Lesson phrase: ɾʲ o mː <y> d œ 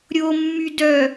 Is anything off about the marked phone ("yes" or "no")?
no